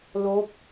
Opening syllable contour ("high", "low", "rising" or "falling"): rising